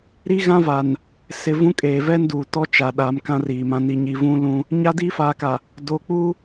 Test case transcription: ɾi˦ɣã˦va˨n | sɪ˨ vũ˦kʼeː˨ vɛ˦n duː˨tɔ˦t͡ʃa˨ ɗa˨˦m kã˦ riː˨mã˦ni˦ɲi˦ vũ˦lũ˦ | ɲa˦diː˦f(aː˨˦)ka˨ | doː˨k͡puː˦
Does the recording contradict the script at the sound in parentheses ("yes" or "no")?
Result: no